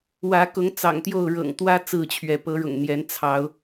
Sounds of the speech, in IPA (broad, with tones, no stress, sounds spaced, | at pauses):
w ä˨˦ k ʊ˨˦ ŋ t͡s ɑ̰˨˩ ŋ t̪ j o˥˨ ʊ̯ ɻ ɤ̰˨˩ ŋ t̪ w ä˦ t͡s ɹ̩˥˨ t͡ɕʰ ɥ ɛ˨˦ p ɤ˨˦ ɻ ʊ̰˨˩ ŋ n̪ j ɛ˨˦ n t͡sʰ ɑ˨˦ ʊ̯